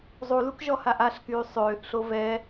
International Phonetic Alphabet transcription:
zˤ u l u k ʒ ɔ h a ʔ a ɬ k yː sˤ øː ʔ ɬ o v ɛ

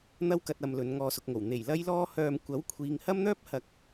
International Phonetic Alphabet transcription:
n̪ ɐ˥ w k ɐ˧ t̚ ɐ˨ m l ɵ˨˧ n ŋ ɔː˧ s ʊ˨ k̚ ŋ o˨˩ w n̪ e˨˩ j l ɐ˥ j l ɔː˥ h œː˧ m kʷ ɐ˨˥ w kʷʰ iː˨ ŋ h ɐ˥ m n̪ œː˥ p̚ h ɐ˨ k̚

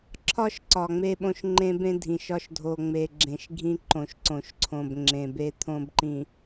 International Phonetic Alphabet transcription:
ǁʰ ɒ˦ ʃ ǀ ɒ˨ ŋ͡m e˦ ɓ õ˦ ʃ ŋ͡ǃ ẽ˦ b ẽ˦ dʱ ĩ˨ ʃ ɒ˦ ʃ dʱ o˨ ŋ͡m e˨ ɡ͡ǁ ẽ˨ ʃ ɡʱ ĩ˦ ǃ õ˨ ʃ ǀ õ˨ ʃ ǀʰ õ˨ b ŋ͡ǁ ẽ˨ b e˦ t̪ʰ õ˦ b ǃ ĩ˨

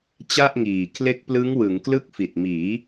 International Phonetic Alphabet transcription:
t͡ɕ a˥˩ ʔ ŋ iː˨˩ kʰ l e˦˥ k̚ p l ɯ˦˥ ŋ w ɯ˩˦ ŋ k l ɯ˥˩ k̚ f i˨˩ t̚ m iː˩˦

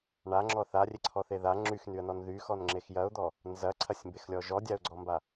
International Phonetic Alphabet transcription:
ɳ a ŋ͡ǁ ɔ θ a rʲ e ǀʰ ɔ θ e ð a ŋ͡ǁ y x n y ə̯ n ɔ n ð y x ɔ n ŋ͡ǁ e x j ɐ ʊ̯ d̪ ɔ | n z ɐ ǀʰ ɐ sʲ m b e x lʲ ɔ ʒ ɔ dʲ a ʊ̯ ɡ͡ǀ ɔ m b a

